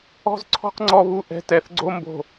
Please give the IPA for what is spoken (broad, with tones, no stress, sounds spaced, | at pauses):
ɔ̤˦ z ǀʰ ɔ̤˦ q ŋ͡ǀ ɔ˦ β u˦ ʔ ɛ̤˦ t ɛ˨ θ ɡ͡ǀ o˦ m b o̤˨